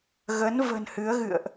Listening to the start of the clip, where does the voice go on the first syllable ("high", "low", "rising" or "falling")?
rising